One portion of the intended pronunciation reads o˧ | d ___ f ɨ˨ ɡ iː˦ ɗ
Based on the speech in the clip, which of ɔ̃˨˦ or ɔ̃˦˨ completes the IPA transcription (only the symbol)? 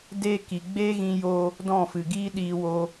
ɔ̃˦˨